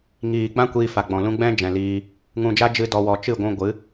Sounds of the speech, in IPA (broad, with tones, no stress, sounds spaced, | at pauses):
ŋ iː˨ ɡ͡b ã˦ kʷ iː˧ f a˨ ɡ͡b ɔ̃˨ l ũ˧ ɡ͡b ɛ̃˦ d͡ʒ ɛ̃˨ l iː˧ | ŋ ũ˨ d͡ʒ a˧ d͡ʒ ɨ˧ d ɔ˨ w ɔ˨ t͡ʃ ɨ˦˨ ɡʷ ũ˧ ɡʷ ɨ˨˦